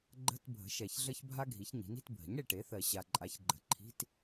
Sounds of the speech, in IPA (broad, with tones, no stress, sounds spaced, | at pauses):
ɡ͡ǃ ə̤˧˥˧ t bʱ ə̤˩˥ ʃ ɛ˨ ç ɮ ə˥ ç bʱ a˥ ɡʱ i˩˥ ç ɲ i̤˩˥ n i̤˩˥ t bʱ ə̤˩˥ ɲ ɽ e˨ ʈ e˩˥ θ ɜ˨ ɕ a˨ ǃʼ a˩˥ ç ɡ͡ǃ ə̤˨ ǃʰ i̤˧˥˧ t